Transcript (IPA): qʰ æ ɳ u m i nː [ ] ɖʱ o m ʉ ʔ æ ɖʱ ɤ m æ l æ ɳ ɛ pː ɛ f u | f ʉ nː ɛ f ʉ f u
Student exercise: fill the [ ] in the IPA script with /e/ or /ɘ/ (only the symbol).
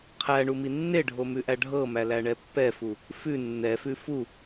e